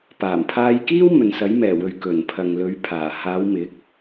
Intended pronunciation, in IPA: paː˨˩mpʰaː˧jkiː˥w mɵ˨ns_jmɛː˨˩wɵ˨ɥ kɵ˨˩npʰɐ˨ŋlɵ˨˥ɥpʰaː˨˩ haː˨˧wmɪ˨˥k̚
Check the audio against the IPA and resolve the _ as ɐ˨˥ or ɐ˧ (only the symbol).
ɐ˨˥